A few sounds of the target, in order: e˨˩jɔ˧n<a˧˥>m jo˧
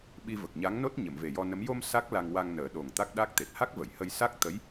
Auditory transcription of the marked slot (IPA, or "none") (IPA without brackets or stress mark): ə˧˥